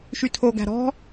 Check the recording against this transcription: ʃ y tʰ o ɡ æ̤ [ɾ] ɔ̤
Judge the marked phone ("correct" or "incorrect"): correct